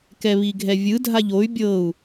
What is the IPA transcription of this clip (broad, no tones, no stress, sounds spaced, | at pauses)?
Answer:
k ɛ β i ɡʱ ɛ vʲ ɯ dʱ a ʎ o y̯ bʲ ɤ u̯